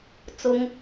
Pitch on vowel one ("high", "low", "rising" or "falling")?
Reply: high